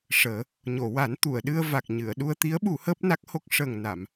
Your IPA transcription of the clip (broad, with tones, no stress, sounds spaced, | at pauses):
ʂ əː˨˩˦ | ɲ o˨˩˨ w a˨˩˦ n t̪ u˨˩˨ ə̯ ɗ ɨ˧ ə̯ v a˨˩ k̚ ɲ ɨ˨˩˨ ə̯ ɗ u˧ ə̯ t̪ i˧˥ ə̯ ɓ u˨˩˦ h əː˦˥ p̚ n a˦˥ k̚ h o˦˥ k̚ ʂ əː˨˩ ŋ n a˨˩˨ m